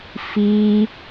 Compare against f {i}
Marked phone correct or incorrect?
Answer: correct